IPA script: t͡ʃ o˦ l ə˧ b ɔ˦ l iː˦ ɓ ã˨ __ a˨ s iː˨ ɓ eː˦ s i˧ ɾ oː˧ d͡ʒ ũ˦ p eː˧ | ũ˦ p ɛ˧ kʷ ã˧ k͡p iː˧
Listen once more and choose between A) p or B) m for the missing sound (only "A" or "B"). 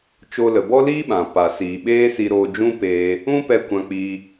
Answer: A